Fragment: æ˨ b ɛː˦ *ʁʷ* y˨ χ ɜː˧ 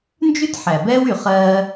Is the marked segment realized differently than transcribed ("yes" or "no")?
yes